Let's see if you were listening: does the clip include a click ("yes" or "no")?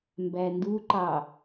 yes